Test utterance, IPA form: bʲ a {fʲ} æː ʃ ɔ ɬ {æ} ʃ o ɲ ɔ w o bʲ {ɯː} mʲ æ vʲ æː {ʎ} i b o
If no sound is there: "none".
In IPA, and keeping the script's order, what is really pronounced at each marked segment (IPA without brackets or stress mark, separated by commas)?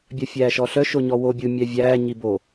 fʲ, œ, ɯ, ɲ